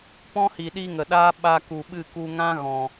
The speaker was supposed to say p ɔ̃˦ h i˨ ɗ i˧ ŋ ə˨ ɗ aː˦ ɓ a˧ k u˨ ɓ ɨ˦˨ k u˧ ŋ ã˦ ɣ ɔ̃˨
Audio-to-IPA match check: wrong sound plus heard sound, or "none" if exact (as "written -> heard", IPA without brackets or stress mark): none